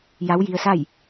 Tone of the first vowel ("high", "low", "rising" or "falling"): rising